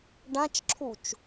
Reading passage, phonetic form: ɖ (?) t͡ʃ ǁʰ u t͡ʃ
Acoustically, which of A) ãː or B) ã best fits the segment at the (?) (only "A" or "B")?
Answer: B